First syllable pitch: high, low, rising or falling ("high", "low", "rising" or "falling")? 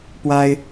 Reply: high